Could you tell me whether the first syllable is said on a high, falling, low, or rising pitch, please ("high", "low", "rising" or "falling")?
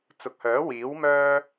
low